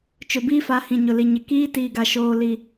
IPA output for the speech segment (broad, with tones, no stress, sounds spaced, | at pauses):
t͡ʃ ʊ˨ b iː˦ f a˨˦ h ĩ˨ ɲ ʊ˨ l i˨ ɲ ɪ˨ k iː˦ t iː˨ ɡ a˨ ʃ oː˨ l i˨